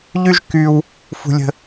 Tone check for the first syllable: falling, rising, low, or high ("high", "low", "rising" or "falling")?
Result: high